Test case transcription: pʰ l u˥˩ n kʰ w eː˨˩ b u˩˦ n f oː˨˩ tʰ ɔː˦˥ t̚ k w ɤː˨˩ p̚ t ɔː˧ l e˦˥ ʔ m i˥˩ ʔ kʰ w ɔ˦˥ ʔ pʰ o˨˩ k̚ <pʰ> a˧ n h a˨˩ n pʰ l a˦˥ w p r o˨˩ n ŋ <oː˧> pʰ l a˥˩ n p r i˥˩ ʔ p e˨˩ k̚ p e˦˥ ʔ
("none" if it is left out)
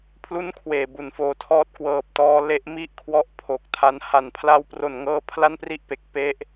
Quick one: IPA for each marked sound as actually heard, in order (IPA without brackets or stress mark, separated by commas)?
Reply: tʰ, ɤː˧